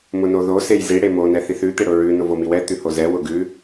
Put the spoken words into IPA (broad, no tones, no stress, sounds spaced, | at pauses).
m ʊ n o ð o s e j z i ɽ e m o n ɛ θ i θ ʉ t̪ e ɽ ʊ ɹ ʉ n ʊ v o m i w ɛ t̪ ʉ h o z ɛ w ʊ ɡ ʉ